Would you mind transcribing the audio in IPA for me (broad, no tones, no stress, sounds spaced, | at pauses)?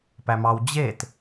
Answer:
p æ m ɑ w d͡ʑ e t